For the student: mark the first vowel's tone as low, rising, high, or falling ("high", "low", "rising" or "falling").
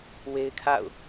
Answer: high